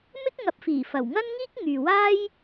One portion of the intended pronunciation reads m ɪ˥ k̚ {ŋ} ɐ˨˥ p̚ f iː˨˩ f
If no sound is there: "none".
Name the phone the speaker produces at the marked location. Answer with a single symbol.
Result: ŋ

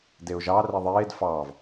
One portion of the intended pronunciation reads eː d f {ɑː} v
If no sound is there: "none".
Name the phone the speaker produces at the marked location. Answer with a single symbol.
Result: ɑː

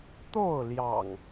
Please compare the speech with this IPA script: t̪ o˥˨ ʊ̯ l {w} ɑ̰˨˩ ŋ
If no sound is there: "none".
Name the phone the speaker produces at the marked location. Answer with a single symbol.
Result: j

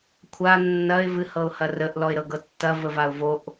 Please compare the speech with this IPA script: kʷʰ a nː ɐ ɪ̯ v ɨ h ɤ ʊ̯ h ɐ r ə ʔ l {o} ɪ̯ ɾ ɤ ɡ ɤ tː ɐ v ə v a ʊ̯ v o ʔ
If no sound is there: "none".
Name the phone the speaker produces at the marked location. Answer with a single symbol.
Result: ɔ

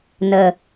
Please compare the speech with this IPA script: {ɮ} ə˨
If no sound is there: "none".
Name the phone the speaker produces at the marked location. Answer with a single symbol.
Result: n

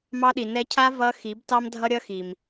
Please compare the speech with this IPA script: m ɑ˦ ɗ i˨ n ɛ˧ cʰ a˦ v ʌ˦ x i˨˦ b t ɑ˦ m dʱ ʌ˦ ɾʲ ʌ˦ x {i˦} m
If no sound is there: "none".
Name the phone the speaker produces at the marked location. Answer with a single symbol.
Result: i˨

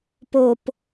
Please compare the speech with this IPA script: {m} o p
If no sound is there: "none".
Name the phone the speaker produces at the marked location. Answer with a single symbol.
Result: p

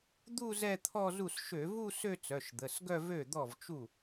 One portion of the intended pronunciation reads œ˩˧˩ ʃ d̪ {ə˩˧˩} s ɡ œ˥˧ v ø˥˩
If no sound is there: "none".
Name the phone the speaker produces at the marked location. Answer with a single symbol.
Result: ə˩˧˩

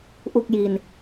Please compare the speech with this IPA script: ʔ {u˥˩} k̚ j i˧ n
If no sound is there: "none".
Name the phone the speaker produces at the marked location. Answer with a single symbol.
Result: u˥˩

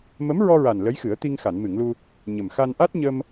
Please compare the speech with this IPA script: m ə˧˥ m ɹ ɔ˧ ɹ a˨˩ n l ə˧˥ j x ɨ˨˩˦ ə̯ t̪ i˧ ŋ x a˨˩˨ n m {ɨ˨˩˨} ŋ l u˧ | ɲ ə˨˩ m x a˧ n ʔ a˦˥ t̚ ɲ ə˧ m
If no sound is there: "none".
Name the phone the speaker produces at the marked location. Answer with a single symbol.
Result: ɨ˨˩˨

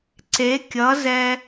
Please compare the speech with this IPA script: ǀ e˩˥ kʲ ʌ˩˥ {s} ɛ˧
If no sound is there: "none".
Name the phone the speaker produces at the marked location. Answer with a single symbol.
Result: z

